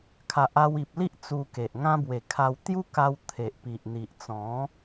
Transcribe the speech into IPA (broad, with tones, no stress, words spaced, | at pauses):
kʰa˨ʔa˧wi˨p̚li˦ʔ t͡su˧ke˨ʔŋã˦ bwe˨˩kʰa˧w t̪ju˦ka˧w t̪ʰe˨ʔpi˨ʔn̪i˨ʔt͡sɔ̃˨˦